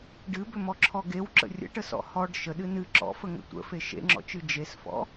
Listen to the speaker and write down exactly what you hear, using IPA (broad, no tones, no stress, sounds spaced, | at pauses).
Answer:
ɖ ɨ b ʏ m ɔ ǁʰ ɔ ɡ e w ǁ ə̰ rʲ ə̰ ʈ ə s ɔ̰ h ɔ ɖ ʃ ə ɗ ɨ n ɨ ǁ ɔ̰ f ə ŋ ə̰ tʷ ə̰ f e ʃ ḛ ŋ͡ǁ ɔ̰ t͡ʃ ɨ d͡ʒ e s f ɔ̰